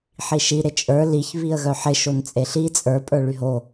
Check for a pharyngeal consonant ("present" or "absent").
present